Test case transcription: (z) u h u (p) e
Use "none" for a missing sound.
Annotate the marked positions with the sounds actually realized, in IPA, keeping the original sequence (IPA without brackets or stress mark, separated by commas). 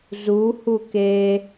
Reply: z, k